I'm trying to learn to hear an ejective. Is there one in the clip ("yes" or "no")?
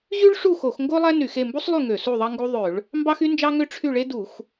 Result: no